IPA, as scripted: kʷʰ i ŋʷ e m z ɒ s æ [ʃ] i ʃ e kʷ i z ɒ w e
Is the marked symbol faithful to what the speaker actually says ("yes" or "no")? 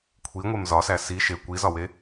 no